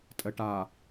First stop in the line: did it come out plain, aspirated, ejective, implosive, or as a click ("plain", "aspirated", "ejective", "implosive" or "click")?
ejective